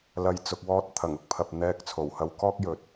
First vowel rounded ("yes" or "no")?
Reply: no